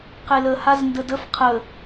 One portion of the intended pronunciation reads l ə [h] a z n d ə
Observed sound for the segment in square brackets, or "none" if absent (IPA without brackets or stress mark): h